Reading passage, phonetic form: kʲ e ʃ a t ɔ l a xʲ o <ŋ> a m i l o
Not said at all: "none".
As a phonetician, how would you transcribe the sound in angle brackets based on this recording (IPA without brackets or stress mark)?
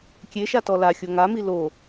ŋ